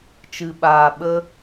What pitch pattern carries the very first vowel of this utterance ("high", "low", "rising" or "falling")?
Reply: low